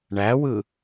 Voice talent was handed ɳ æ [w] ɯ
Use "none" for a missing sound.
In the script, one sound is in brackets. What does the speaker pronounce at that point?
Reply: w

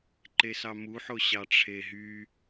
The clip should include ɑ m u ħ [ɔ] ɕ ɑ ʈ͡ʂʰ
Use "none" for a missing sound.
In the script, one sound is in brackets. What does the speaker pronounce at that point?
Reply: o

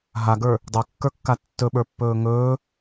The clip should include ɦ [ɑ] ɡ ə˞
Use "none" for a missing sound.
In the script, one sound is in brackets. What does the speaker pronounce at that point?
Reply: a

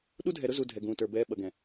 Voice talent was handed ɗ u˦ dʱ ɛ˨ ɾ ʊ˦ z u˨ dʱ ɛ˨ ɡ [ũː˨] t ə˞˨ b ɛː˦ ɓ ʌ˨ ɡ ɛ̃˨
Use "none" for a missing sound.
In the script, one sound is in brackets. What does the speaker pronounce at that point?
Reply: ũː˨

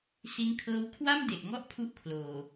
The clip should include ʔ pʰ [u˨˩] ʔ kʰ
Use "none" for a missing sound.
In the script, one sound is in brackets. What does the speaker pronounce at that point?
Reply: u˥˩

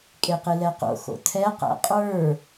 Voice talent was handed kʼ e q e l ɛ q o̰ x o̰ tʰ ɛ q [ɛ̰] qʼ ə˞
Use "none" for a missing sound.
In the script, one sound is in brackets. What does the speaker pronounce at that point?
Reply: æ̰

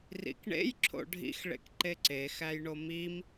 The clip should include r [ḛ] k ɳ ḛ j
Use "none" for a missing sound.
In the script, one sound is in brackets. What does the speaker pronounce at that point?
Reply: ḭ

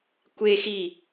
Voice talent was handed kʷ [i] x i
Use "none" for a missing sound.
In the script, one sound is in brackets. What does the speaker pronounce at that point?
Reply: e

